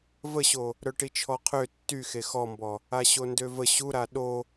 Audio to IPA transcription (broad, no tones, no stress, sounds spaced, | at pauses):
v ə ɕ o | ɾ œ ʈ i t͡ʃʰ ɔ qʰ ø tː y x e x ɔ m b ɔ | a ɕ o n d ø v ə ɕ u ɾ a ɗ o